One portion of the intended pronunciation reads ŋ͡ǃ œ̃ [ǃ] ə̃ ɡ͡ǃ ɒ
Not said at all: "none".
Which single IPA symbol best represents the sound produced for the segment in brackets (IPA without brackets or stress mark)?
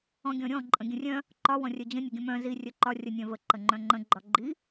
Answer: ŋ͡ǃ